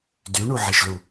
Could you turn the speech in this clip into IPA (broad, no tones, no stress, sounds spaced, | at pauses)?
d y ɳ u ʕ e ʃ l u